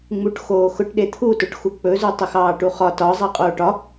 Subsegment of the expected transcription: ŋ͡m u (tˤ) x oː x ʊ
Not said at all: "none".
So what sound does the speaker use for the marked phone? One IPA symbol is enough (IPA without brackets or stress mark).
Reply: ʈ